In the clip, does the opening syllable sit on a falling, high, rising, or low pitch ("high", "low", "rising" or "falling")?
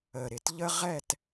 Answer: low